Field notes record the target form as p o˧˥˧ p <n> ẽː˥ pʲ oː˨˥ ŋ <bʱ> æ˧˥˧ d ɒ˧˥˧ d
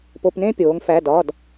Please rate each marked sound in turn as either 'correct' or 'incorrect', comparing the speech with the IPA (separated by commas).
correct, incorrect